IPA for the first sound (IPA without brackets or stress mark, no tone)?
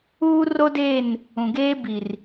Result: uː